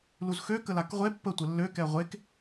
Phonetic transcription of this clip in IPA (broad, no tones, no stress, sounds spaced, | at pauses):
l u z x ø k ə l a k ʁʷ e pː ə tʷ ə lː ø k ɛ ʁʷ e k